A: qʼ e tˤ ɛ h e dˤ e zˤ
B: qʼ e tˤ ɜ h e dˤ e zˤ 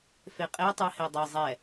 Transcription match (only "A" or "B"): B